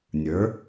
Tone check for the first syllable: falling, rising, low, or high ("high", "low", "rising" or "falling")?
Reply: rising